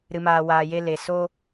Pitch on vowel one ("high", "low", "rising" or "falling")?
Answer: low